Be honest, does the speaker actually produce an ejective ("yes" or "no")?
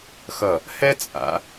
yes